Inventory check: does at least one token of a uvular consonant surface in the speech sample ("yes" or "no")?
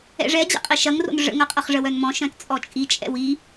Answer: yes